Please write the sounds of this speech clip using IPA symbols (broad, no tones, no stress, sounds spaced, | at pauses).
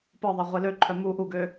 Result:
p ɤ ðˤ a ʁʷ e l ø ǃʰ œ m u ʔ u ɡ ø